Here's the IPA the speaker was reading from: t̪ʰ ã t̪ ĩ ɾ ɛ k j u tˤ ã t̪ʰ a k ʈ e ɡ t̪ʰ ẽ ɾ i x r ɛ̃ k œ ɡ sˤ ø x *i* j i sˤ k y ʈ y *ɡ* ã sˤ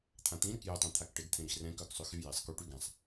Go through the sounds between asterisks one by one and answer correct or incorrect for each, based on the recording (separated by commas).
incorrect, correct